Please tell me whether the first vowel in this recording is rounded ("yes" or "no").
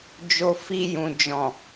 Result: yes